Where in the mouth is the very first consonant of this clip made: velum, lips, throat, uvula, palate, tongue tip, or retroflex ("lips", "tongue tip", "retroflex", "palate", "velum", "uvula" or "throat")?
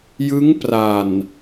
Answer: palate